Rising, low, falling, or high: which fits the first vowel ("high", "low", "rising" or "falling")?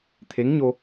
rising